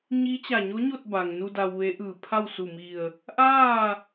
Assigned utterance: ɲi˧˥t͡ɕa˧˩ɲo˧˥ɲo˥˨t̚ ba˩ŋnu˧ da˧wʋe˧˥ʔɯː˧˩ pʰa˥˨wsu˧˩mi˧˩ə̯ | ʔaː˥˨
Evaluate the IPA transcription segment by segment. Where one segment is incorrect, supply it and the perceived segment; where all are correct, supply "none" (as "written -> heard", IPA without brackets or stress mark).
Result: none